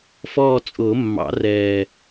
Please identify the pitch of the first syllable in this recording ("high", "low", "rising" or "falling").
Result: falling